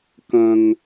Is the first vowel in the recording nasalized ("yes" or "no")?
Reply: yes